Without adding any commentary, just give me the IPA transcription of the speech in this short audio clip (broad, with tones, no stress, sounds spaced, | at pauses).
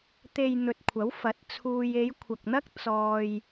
t̪ e˨ j n̪ ɵ˨ t̚ kʷʰ ɐ˨˥ w f ɐ˨˥ t̚ t͡sʰ uː˧ j e˨˧ j kʷʰ ɐ˨ k̚ n̪ ɐ˥ k̚ t͡s ɔː˧ j